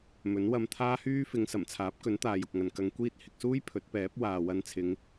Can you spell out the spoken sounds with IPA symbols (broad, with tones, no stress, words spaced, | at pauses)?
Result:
mɵ˨˥nwɐ˧m t̪ʰaː˥hyː˥fɪ˨˧ŋ sɐ˨˩mt͡sʰaː˨˥p̚kɵ˨˥nt̪aː˨j ʊ˨k̚ŋɐ˨n kɐ˧ŋkʷiː˥t̚ hɪ˧k̚suː˥j pʰɵ˨˥t̚pɛː˨˥p̚ waː˨wɐ˧nt͡sʰɪ˨˧ŋ